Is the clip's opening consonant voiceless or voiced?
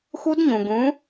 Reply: voiceless